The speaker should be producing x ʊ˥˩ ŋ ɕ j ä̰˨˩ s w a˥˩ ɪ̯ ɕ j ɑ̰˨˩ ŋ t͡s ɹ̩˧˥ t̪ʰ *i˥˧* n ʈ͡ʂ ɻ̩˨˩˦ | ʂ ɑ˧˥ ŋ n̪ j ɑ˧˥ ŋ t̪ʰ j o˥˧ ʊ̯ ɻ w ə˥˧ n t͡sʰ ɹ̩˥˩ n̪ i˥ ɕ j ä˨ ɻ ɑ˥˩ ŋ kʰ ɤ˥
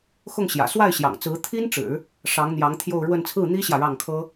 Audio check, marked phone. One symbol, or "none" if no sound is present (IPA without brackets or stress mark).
i˥